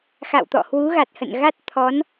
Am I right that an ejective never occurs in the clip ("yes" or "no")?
yes